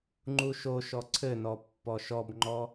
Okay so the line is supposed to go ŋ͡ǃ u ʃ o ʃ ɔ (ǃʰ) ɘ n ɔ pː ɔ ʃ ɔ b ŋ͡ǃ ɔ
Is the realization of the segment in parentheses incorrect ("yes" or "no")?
yes